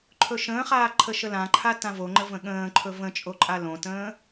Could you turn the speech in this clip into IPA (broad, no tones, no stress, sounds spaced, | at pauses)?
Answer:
ǃʰ ɵ ʃ ə̃ː χ aː ǃʰ ə ʃ ə l ã ǃʰ a t ã v o ŋ͡ǃ ə v ə̃ ɠ ə̃ː ǃʰ ɵ v ə̃ t͡ʃʼ o ǃʼ a l õ t ə̃ː